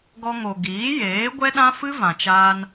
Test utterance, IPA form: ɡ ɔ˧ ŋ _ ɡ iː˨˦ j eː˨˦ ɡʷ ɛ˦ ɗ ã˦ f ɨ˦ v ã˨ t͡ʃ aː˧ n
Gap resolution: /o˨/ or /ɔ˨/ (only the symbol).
o˨